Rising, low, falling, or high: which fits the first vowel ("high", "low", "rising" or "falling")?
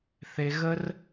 high